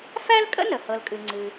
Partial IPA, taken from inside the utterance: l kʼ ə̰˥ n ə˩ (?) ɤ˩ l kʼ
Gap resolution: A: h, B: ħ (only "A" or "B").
A